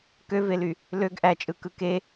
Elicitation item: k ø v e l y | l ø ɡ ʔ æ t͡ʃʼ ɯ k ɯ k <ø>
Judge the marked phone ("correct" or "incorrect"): incorrect